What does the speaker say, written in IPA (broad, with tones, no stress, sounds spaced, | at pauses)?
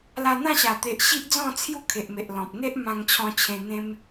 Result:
l a˧ n̪ ã˥˧ ɕ a˨˩ t̪ e˨ ʔ ɕ i˦ ʔ d͡z ɔ̃˥˧ t͡sʰ j u˥˧ kʰ e˨ ʔ m e˨ ʔ l ɔ̃˨ p̚ n̪ e˦ ʔ m ã˧ ŋ t͡ɕʰ ɔ̃˧ t͡ɕʰ ẽ˧ n̪ ẽ˧ m